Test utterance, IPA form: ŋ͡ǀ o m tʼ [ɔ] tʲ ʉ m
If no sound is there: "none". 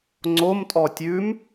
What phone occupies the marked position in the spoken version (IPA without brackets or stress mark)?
ɔ